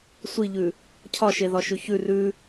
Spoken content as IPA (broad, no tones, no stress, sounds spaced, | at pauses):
sʷ i ʎ ʉ | cʰ ɒ ʃ e ð ɒ ʃ ʉ ç ʉ r ʉ